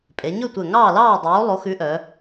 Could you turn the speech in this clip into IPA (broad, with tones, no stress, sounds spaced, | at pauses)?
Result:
pʼ e˩˧ ɲ ɵ˥˨ tʷ ɛ˧˩ ŋ ɑː˥˨ l ɑː˥˨ dˤ oː˨˥ lˠ o˨˥ x ʉ˨˥ ʔ œ˩˧